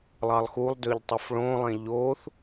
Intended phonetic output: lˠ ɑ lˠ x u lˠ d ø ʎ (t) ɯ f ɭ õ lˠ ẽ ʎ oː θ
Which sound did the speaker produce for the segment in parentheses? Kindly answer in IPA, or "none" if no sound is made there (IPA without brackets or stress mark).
tˤ